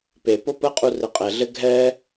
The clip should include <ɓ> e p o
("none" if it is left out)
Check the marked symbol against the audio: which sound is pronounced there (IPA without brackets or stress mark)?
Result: p